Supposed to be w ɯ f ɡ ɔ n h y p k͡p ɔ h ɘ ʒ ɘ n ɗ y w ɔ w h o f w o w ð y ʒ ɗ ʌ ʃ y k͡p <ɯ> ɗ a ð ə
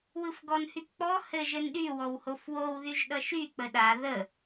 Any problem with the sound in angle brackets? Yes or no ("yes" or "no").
yes